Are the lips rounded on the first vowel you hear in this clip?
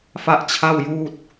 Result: no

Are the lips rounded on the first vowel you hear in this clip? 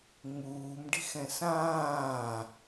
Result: yes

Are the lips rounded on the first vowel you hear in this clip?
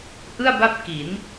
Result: no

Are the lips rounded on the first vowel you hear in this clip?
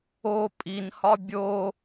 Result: yes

